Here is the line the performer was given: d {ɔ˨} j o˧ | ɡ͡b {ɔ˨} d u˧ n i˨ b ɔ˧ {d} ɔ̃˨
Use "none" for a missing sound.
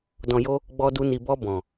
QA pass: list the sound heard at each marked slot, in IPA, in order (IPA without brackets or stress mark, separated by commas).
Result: ɔ̃˨, ɔ˧, b